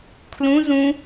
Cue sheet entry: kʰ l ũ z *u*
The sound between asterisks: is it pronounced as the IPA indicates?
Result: no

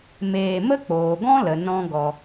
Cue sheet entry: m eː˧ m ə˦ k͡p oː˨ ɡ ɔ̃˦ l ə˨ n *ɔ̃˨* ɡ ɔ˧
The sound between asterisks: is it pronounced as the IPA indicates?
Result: no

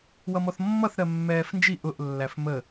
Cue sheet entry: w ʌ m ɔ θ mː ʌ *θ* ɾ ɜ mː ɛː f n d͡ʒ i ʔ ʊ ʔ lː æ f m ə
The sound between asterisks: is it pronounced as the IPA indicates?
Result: yes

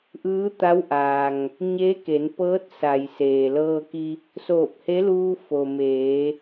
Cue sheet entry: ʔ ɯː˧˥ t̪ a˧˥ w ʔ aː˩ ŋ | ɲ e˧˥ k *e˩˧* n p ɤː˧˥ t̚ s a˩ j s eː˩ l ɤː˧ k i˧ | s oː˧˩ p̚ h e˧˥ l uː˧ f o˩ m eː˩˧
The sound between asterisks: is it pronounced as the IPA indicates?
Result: yes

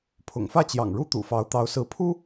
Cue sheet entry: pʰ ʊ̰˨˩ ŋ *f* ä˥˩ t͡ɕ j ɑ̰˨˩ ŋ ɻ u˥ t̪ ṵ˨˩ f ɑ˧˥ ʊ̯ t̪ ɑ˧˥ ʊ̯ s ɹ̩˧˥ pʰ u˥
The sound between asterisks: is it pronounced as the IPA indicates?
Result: yes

